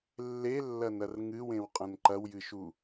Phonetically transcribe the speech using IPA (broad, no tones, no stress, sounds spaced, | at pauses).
lː e lː ɐ n ɐ r ŋ ɨ w ẽ w qʼ ɐ̃ n ǃ ɐ w j ɨ ʃ u